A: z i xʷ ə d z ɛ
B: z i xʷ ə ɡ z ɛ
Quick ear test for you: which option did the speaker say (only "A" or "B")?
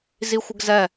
B